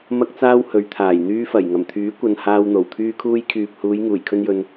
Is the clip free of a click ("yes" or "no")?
yes